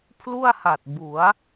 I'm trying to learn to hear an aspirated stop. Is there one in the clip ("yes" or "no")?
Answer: yes